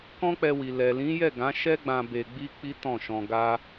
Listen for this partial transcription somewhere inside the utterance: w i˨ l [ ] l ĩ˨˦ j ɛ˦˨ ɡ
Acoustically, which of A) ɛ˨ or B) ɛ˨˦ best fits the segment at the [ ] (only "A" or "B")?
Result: A